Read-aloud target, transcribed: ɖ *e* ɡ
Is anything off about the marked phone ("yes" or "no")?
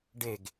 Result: no